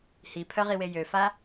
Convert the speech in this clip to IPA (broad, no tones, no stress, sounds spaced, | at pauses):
h i pʰ œ ʁ i w e j ø f a